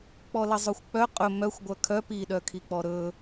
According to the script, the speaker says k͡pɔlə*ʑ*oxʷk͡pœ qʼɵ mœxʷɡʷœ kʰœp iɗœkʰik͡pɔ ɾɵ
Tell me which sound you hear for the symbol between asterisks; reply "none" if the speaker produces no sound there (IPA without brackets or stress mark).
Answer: zˤ